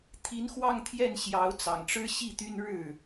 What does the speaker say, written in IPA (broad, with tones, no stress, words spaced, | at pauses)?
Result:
t̪ʰi˧˥nxwɑ˥˧ŋt̪ʰjɛ˥˩n ɕjɑ˧˥ʊ̯t͡sɑ˨˩ŋʈ͡ʂɻ̩˥ ɕi˥˩t̪y˥nɻɻ̩˥˩